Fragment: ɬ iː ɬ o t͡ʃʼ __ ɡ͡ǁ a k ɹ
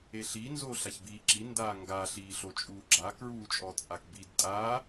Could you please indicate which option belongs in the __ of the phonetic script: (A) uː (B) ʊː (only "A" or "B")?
A